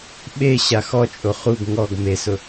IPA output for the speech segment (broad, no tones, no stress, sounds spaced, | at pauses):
ɓ e ɕ a x ɔ t͡ʃʼ o χ u ɡ ŋ ɔ ɡ m e s ʊ